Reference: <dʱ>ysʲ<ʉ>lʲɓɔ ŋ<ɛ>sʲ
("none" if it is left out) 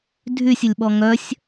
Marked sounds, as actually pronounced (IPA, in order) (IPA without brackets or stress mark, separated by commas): dʱ, ə, œ